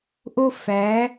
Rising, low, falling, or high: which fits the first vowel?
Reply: high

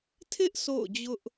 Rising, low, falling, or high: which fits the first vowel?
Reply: high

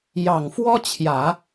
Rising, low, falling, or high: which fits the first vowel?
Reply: low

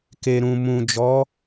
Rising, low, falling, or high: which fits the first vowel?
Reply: low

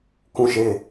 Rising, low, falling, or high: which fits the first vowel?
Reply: falling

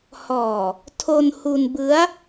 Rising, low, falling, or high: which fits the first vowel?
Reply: low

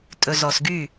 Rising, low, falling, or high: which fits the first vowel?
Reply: low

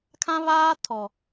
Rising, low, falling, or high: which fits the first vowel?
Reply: high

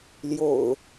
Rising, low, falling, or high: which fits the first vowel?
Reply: low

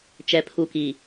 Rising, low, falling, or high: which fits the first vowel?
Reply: low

